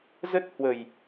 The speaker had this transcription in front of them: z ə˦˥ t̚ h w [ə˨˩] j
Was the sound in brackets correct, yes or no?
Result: yes